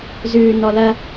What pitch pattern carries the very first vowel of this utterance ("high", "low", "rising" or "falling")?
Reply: low